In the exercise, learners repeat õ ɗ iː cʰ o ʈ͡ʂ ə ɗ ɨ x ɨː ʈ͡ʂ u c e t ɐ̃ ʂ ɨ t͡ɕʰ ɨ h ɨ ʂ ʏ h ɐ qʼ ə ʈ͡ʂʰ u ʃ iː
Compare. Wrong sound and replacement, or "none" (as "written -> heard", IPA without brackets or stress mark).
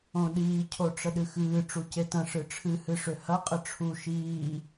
t͡ɕʰ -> ʈ͡ʂʰ